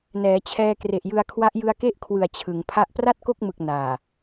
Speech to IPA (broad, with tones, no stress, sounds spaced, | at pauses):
n ɛː˩˦ t͡ɕʰ ɛː˧ k r e˨˩ ʔ j ɯ˧ a̯ kʰ w a˦˥ ʔ j ɯ˧ a̯ k e˥˩ ʔ kʰ w ɯ˨˩ a̯ t͡ɕʰ ɯ˩˦ ŋ pʰ a˥˩ ʔ p r a˥˩ t̚ k o˥˩ k̚ m ɯ˨˩ k̚ n aː˨˩